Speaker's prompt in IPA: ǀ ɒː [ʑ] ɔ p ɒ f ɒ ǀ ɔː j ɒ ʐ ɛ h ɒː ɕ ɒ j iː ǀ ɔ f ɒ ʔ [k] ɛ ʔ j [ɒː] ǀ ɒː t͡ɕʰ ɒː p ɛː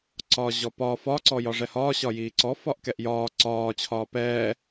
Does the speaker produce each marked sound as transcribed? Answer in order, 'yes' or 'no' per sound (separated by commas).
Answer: yes, yes, yes